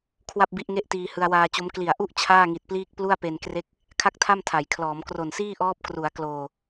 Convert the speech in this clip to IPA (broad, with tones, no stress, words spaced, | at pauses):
kʰwa˥˩p̚bi˦˥ʔŋe˥˩ʔtiː˧ hɯ˧a̯waː˧t͡ɕo˦˥m kli˨˩a̯ʔu˥˩ʔ t͡ɕʰaː˥˩ŋi˨˩t̚pliː˥˩k̚ plu˥˩a̯pe˧n kre˦˥k̚ | kʰa˥˩k̚tʰa˥˩mtʰa˩˦jkʰlɔː˩˦m kro˨˩nsiː˥˩ʔɔː˦˥p̚ kru˩˦a̯kloː˨˩